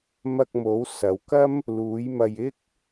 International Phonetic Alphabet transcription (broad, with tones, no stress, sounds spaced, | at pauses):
m ɐ˧ k̚ m o˨˧ w s ɐ˨˧ w k ɐ˥ m | l uː˨˧ j m ɐ˧ j ɪ˥ k̚